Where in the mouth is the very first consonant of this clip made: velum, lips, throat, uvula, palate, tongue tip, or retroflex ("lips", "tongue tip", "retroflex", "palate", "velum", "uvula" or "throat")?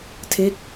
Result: tongue tip